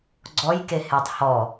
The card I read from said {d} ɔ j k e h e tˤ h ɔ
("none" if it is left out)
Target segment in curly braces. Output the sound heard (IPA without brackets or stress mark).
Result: ɡ͡ǀ